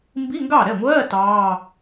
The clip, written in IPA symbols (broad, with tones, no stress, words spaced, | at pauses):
mbi˧˥˧ŋɡɑ˥˩ɾɛ˥˩ŋʷɜː˧˥˧ tɑː˧˥˧